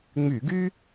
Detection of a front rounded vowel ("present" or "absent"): present